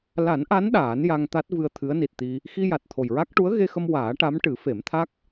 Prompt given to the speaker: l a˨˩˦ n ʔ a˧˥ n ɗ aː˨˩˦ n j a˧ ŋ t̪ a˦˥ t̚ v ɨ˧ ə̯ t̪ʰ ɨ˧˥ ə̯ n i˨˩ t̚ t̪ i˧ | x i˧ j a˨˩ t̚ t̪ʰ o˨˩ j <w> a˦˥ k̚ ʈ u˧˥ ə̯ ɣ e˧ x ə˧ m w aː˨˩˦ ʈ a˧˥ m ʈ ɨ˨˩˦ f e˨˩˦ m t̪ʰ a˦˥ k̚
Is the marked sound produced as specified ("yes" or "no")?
no